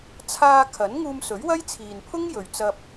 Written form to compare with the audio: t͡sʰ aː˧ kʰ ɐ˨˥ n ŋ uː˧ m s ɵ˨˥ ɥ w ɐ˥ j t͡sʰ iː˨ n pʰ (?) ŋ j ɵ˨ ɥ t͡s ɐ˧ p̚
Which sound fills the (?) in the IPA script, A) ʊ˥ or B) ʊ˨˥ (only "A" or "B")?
A